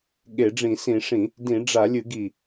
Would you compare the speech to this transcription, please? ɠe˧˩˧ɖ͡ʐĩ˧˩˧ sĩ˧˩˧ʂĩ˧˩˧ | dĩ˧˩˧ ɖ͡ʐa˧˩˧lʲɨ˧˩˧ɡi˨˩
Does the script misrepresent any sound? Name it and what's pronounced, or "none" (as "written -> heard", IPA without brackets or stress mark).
none